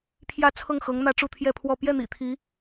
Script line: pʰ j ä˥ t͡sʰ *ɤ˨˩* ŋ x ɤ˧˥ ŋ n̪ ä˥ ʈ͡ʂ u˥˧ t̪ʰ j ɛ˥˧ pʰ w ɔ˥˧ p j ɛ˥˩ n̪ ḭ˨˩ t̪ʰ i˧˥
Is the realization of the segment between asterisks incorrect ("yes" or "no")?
yes